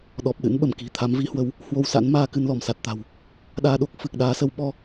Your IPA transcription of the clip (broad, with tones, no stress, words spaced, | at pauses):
ɗɔ˨˩p̚ɗɨ̰˧˥nɓə˧˩mki̤˨˩ t̪ʰa˨˦mvi˨˦hwə˨˦w | hwo˧wsa̰˧˥nmaː˧ kɨ˧nlɔ˧˩msa˨˩t̚t̪a̤˨˩w | ɗaː˧ɗo˦˥k̚ fɨ˨˩k̚ɗaː˨˦sə˨˦w ɓɔ˧